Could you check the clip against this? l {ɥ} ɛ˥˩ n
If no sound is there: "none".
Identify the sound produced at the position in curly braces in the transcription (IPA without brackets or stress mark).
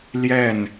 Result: j